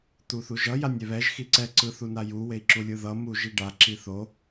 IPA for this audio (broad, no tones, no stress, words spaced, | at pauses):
t̪uθuʒʌ janʲɛβɛʒ xiǀɛ ǀɯθunaju wei̯ǁulʲɯðʌ muʒiɖa ǁiθo